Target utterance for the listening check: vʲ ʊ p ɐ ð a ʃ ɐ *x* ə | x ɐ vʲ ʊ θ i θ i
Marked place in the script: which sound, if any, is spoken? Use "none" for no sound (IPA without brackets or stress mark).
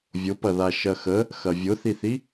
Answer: x